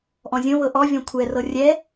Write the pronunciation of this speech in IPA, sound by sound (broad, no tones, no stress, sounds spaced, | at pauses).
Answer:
ʔ ɔ̃ zʲ õ β ɤ ʔ ɔ vʲ ɔ̃ kʷʰ ɛ r ɤ rʲ ɛ